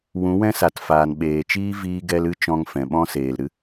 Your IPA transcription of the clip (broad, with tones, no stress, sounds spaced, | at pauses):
w ũ˨˦ w ɛ̃˦ s a˨ t f aː˨ n ɓ eː˨ t͡ʃ iː˦ v iː˧ ɡ ɛ˧ l ɨ˦ t͡ʃ ɔ̃˧ ŋ f ɛ̃˨ ɓ ɔ̃˦ s eː˨ l ɾ ɨ˦